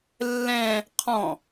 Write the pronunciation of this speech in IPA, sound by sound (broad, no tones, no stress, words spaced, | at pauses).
lːɛ̃ | qʰɔ̃